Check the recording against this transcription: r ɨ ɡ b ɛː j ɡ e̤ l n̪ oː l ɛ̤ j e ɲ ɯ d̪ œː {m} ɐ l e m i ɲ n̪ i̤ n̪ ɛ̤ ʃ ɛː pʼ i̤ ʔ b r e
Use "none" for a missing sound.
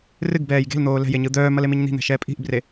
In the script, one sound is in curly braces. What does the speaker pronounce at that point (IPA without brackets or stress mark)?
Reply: m